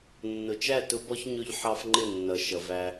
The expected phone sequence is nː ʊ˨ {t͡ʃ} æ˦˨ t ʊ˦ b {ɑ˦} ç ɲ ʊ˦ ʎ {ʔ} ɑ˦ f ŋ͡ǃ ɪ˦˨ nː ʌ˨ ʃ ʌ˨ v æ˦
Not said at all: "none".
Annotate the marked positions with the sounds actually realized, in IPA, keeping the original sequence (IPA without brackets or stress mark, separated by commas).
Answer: t͡ʃ, ɔ˦, ħ